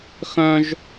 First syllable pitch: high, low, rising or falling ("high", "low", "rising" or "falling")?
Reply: high